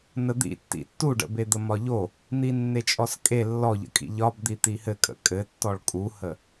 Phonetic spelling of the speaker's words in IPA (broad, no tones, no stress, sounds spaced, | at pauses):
n ə d̪ ḭ tː ḭ tː u ɖ ə̰ b e d̪ ə m ɒ ʎ o | n̪ i nː e t͡ʃʼ ɔ s kʼ e lː ɔ ʎ ə̰ kʼ ḭ ʎ ɒ b d̪ i t̪ i h ɘ kʼ ə̰ kʼ ɘ tː ɔ ɭ kʼ u h ə